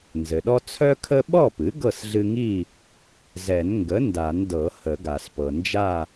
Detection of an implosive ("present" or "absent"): present